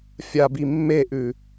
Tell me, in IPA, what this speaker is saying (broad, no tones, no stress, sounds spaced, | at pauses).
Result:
fʲ a b i mː e ʔ ʉ